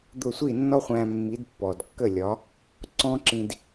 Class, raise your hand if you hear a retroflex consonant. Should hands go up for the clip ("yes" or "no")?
no